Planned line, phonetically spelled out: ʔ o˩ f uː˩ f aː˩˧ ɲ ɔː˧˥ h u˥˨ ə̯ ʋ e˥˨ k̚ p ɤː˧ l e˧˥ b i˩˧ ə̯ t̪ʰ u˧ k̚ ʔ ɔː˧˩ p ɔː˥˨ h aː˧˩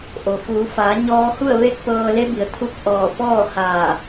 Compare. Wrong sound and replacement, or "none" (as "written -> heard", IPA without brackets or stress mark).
uː˩ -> uː˩˧